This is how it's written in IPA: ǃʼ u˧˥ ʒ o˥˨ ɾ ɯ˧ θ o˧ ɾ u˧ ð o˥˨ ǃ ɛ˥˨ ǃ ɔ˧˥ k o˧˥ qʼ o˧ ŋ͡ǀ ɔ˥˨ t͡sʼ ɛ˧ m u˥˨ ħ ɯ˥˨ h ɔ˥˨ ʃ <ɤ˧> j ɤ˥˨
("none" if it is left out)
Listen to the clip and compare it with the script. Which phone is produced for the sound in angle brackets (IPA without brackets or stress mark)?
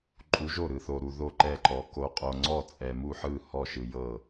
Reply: ɯ˧